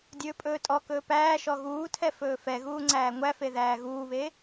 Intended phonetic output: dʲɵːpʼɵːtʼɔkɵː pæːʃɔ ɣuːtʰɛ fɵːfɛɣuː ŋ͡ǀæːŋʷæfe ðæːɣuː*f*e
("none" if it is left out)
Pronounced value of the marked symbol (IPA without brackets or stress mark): β